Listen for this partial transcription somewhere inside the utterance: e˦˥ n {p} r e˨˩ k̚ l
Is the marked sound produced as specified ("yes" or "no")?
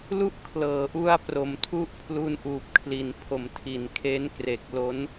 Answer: no